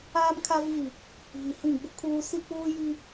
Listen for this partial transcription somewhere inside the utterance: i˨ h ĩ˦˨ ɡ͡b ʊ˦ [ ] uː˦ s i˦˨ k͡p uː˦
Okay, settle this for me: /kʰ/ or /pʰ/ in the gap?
kʰ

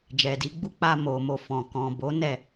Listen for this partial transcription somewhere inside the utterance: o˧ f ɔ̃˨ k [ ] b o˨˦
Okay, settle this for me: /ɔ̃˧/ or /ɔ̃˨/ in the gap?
ɔ̃˨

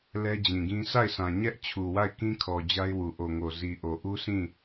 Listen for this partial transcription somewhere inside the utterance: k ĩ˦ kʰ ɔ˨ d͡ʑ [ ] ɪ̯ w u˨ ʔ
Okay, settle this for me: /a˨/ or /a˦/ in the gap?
a˦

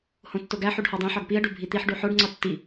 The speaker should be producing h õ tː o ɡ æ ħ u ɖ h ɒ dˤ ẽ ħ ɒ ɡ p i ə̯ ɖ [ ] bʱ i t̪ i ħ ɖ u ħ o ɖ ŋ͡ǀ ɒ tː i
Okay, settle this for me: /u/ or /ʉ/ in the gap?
u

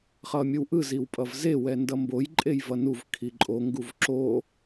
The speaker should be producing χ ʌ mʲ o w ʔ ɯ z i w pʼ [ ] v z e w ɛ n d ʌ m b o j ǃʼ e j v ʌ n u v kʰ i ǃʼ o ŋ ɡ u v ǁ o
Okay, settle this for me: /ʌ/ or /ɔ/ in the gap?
ʌ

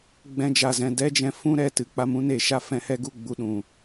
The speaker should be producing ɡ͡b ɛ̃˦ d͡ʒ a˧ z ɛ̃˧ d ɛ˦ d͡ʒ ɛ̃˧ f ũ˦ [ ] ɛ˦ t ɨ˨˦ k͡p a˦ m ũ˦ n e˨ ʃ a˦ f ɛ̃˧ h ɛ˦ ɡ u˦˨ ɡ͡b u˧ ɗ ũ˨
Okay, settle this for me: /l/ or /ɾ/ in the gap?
ɾ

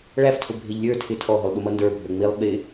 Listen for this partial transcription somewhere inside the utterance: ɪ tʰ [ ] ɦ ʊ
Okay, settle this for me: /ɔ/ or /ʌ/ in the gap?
ɔ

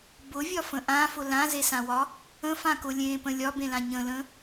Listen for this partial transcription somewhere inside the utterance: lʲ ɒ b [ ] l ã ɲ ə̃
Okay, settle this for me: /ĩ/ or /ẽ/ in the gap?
ẽ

